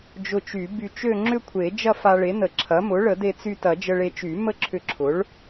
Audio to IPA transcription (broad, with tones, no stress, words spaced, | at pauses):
d͡ʒʊ˧t͡ʃy˨˩˦by˧t͡ʃø˥˧ ŋ͡ǁʏ˥˧kʷʰe˨˩˦ d͡ʒɐ˥˧fa˧ɭe˩˥nə˨˩˦ ǁʰɐ˩˥mʊ˩˥ ɭə˨˩˦de˧t͡sy˧tɐ˨˩˦ d͡ʒə˧ɭe˧t͡ʃy˨˩˦ mə˥˧ǁʰʏ˧ǁʰʊ˩˥ɭ